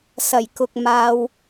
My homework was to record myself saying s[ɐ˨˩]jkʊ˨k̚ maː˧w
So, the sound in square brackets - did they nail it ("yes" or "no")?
yes